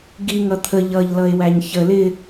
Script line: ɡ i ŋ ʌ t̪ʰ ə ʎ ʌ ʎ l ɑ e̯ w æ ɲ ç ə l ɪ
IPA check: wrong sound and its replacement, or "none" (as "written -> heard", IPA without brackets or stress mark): ɑ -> ʌ